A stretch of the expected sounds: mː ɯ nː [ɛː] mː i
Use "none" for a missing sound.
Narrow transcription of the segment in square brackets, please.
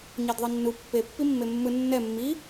ɛ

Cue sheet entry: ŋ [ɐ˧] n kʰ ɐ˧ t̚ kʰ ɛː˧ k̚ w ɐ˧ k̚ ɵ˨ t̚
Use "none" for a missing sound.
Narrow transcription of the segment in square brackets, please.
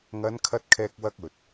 ɐ˨˧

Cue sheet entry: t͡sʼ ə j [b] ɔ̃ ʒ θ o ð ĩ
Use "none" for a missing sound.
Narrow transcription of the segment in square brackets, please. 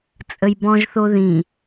b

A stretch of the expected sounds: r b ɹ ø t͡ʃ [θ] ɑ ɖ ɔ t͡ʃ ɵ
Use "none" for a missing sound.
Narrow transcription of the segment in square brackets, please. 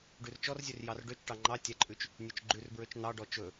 n̪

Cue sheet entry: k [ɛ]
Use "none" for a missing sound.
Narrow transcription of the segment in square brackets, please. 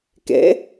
ɛ̰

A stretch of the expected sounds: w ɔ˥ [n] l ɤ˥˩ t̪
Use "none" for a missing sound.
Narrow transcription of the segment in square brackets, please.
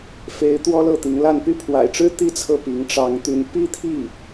none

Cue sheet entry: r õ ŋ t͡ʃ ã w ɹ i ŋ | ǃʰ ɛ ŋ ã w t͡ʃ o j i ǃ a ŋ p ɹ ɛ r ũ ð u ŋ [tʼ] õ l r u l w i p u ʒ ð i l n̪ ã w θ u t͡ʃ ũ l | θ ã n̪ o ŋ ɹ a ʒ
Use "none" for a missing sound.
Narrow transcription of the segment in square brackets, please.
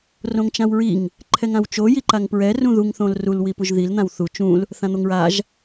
θ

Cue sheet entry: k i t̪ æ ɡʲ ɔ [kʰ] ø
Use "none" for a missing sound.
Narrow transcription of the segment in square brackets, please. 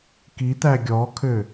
kʰ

